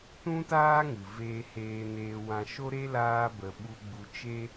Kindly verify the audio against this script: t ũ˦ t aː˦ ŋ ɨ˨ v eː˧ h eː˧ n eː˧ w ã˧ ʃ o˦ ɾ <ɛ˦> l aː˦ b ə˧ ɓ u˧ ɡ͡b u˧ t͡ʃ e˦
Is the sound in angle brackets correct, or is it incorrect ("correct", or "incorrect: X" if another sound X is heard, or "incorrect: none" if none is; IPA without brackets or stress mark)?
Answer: incorrect: e˦